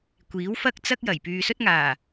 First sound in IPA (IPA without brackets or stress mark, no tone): kʷ